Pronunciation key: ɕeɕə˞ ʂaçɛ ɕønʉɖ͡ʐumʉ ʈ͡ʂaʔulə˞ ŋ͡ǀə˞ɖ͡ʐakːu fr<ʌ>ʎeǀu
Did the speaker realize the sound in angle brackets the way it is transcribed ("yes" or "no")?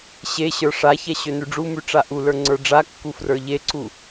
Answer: no